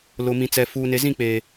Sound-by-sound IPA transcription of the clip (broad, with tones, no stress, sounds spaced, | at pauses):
l ʊ˨ m ĩ˨ t͡s ɛ˨ f uː˨ n e˨ z ĩ˦˨ k͡p eː˨